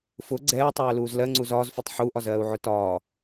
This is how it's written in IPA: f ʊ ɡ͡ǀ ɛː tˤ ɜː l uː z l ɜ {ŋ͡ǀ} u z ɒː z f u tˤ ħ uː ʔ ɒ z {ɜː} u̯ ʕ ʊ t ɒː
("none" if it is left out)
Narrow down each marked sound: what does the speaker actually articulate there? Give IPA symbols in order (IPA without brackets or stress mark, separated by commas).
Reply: ŋ͡ǀ, ɜː